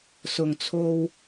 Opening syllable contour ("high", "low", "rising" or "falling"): low